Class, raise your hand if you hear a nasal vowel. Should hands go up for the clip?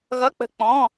yes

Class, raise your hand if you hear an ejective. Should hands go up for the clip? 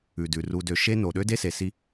no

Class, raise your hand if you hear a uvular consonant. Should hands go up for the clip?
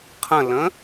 yes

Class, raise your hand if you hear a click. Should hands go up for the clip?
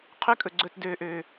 yes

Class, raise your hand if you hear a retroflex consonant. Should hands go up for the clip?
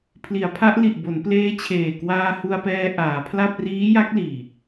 no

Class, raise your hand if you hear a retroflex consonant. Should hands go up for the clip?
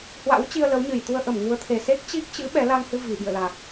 no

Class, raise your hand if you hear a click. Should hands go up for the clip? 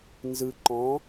yes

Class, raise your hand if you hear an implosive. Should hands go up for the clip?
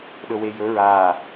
yes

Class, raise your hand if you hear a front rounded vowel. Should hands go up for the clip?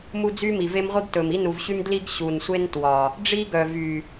yes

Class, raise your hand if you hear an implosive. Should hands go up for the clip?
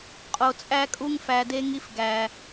no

